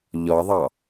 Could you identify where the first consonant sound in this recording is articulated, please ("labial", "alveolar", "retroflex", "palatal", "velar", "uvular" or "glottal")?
palatal